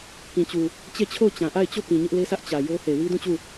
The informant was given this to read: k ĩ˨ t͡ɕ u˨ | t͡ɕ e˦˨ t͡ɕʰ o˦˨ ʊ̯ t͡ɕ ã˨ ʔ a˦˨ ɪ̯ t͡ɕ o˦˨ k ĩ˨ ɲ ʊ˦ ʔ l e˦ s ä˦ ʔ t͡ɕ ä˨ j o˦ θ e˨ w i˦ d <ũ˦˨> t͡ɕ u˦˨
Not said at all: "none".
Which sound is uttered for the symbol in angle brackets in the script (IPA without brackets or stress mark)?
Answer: ũ˦˨